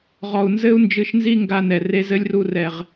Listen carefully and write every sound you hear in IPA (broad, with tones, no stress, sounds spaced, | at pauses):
ʁ ɔ˨ u̯ n z ɘ˦ u̯ n d͡ʒ ɨ˧ ʃ n z i˦ ŋ ɡ a˧ n ɛ˨ r e˧ z ɘ˦ lʲ r u˧ r ɛ˨ ʁ